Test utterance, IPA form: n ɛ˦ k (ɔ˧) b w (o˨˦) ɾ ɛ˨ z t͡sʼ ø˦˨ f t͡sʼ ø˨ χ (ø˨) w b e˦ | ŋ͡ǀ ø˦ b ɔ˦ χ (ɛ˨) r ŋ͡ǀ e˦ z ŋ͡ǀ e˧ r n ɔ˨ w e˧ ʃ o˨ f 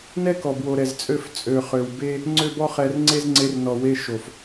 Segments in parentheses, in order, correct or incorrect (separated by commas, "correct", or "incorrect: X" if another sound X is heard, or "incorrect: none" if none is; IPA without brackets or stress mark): incorrect: ɔ˨, incorrect: o˨, correct, incorrect: ɛ˧